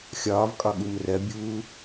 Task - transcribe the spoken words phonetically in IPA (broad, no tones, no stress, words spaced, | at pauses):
xʲɒːvkʼɒɠum rɜbʲuː